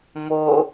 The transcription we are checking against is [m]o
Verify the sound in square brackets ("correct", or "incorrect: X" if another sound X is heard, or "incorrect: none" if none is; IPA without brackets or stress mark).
correct